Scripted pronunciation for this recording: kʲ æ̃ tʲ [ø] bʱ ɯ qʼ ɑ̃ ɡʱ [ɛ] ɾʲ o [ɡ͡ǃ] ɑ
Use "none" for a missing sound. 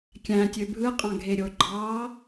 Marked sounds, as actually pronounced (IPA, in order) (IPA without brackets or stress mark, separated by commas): ø, e, ɡ͡ǃ